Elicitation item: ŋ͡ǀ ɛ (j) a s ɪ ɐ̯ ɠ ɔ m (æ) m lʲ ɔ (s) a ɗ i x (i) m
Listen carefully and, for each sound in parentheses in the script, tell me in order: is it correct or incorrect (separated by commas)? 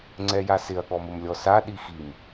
correct, incorrect, correct, correct